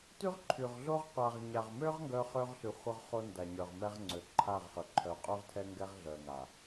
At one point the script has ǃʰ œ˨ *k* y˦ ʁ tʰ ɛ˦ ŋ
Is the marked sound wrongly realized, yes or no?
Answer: yes